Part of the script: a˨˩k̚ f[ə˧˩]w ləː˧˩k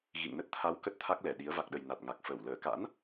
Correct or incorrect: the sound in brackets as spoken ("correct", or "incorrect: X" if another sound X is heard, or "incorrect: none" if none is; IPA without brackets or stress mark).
correct